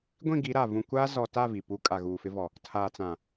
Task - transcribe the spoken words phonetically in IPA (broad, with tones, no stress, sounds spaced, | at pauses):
ɡʷ ĩ˦˨ ɡ i˨˦ ɾ a˨ v ũ˨ kʷ aː˦ z ɔ˨ t a˦˨ v i˨ p u˦ kʼ a˨ ɣ uː˨ f ɪ˦ v ɔ˨ | tʰ aː˨ t͡s ã˨